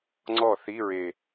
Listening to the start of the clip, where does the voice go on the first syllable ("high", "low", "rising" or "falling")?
falling